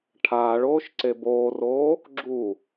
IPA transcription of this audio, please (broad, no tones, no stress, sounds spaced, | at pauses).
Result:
ʈʰ aː ɭ oː ʃ ǀ e b oː r oː | ɡ͡ǁ u